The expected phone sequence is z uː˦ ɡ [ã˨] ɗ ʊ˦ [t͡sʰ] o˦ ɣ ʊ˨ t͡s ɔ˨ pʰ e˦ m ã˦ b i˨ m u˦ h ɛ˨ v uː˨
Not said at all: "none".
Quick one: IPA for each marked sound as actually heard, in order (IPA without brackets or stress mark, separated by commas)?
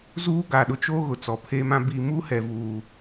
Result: a˨, t͡ʃ